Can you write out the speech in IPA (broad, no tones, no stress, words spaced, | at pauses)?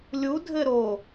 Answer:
lʲu dʱɘɾo